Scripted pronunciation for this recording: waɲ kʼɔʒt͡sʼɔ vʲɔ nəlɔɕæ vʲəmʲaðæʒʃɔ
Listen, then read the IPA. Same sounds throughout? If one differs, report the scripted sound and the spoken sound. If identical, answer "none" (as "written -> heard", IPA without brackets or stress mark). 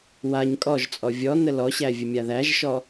none